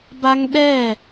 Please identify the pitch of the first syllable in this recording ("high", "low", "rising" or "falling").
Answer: high